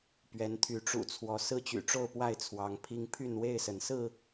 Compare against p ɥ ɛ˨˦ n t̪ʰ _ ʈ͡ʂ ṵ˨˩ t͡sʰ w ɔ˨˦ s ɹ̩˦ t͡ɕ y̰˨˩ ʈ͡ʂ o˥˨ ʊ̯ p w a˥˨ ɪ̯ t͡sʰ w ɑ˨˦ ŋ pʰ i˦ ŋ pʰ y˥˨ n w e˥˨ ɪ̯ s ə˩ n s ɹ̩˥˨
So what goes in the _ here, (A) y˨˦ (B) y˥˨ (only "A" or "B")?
A